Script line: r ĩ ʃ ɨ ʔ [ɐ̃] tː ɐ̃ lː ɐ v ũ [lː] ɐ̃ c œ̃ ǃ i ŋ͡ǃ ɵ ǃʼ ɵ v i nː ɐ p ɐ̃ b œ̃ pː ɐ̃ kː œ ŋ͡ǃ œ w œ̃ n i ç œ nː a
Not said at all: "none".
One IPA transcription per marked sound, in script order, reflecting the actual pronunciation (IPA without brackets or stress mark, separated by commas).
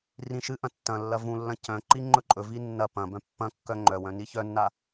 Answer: ɐ̃, lː